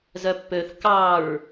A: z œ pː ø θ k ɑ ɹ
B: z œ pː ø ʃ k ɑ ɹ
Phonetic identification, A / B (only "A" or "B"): A